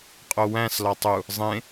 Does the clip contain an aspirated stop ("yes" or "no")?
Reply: no